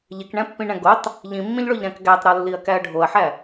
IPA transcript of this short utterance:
ʎ e k ɳ æ̃ pː ĩ ɳ æ̃ ɡ o tˤ | ʎ ĩ mː ĩ ʎ ɭ o ʎ ɾ æ̃ k ɡ æ tˤ ɾ ɒ lː i ɐ̯ k æ ɐ̯ ɖʱ o ɐ̯ ħ æ

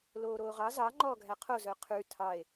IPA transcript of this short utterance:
l oː ɾ oː ʁ ɑ z ɑ ŋ͡ǃ ɔː ɡʱ æ qʰ o z œ qʰ ʉ tʰ ɑ e̯

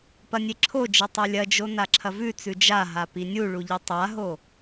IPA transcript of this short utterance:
p ɐ nʲ e ǁʰ o d͡ʒ e tˤ ʉ lʲ ɐ d͡ʒ o n a ǁʰ ɐ v ʉ t͡s ʉ d͡ʒ a ɦ a p i nʲ u ɭ u ʎ i tˤ a ɦ o

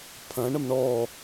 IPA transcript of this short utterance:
pʰ ɐ̃ ɳ ə m ɳ ɔ

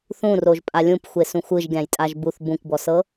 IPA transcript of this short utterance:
θ ũ r o ʒ pʼ a lʲ ũ p xʷ e s ũ xʷ ɯ ʒ ɡʲ ã j tʼ a ʒ b u θ b ũ kʷ b ɔ s ɤ

